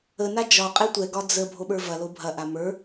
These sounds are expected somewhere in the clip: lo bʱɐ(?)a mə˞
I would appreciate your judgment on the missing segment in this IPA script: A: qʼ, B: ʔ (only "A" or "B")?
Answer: B